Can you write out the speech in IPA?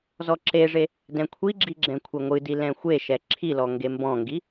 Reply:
z ɔ ǁ e ʐ e | d ɛ̃ kʷʰ i ɡ͡ǁ i ɡ͡ǁ ɛ̃ kʷʰ ɛ ŋʷ ɨ d i l ɛ̃ xʷ e ʃ ɛ ǁʰ i l ɔ ŋ ɡ e m b ɔ̃ ŋ ɡ i

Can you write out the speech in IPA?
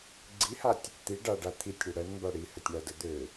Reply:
ɡ͡ǀ i h a tʲ | t̪ i ɖ a ɖ a t̪ʰ i tʲ ɽ e ɽ ɜ n m b a ɽ i h ə tʲ ɳ a d ə d̪ ø

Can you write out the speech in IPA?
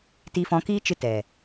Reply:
t i˧ f ɔ̃˧ k iː˦ t͡ʃ ɨ˧ t ɛ˨

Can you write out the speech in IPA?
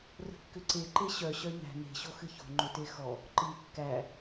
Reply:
r ə̤ kː ʏ ǀ e ǃ e ɕ œ ɕ œ ɲ æ̤ n e̤ ɕ o x ɨ ç o̤ ŋ͡ǃ ʏ t e x ɔ | ǃ ɨ kː æ

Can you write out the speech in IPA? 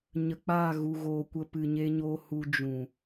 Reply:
ɲ ə˨ k͡p aː˦˨ ɣ u˨ ɣ oː˨ kʷ ə˧ p ɨ˨ ɲ e˧ ɲ oː˧ h u˧ d͡ʒ ũ˨

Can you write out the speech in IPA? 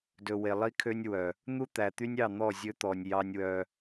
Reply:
d ɵ˨ w e˨ lˠ i˦ kʰ ø˦ nʲ w œ˨ | n̪ u˦ t̪ æ˨ t̪ y˦ nʲ ɑ˦˨ n̪ ɔ˦˨ zʲ ɵ˦ t̪ ɔ˨ nʲ j ɑ˦ nʲ w œ˦

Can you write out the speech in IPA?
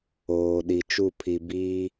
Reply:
oː˨ ɗ i˨ t͡ʃ u˦˨ pʰ i˨ b iː˦

